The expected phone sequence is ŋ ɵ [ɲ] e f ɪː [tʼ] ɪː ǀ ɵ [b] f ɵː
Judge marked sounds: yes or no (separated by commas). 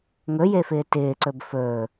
no, no, yes